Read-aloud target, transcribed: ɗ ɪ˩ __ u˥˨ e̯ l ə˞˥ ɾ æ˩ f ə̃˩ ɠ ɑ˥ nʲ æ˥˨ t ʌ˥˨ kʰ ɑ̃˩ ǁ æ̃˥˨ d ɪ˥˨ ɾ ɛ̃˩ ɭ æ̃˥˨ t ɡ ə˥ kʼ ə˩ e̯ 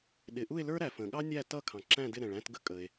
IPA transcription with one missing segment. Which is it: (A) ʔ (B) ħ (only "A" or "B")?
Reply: A